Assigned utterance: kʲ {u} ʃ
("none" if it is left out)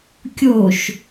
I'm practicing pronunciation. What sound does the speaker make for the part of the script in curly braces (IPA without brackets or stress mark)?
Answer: o